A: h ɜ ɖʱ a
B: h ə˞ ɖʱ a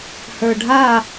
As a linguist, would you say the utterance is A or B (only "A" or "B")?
B